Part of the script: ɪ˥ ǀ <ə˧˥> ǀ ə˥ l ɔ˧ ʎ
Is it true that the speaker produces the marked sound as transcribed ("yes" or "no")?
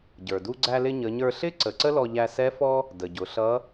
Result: no